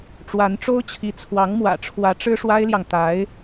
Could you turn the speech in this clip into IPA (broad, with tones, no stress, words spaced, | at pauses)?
ʈ͡ʂwa˧˥nʈ͡ʂo˥ʊ̯t͡ɕʰi˧˥ t͡sʰwɑ˧˥ŋmwä̰˨˩ʈ͡ʂʰwä˧˥ ʈ͡ʂɻ̩˥ʂwa˥ɪ̯ljɑ˨ŋ t̪a˧˥ɪ̯